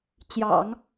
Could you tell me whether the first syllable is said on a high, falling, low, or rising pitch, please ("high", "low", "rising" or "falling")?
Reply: low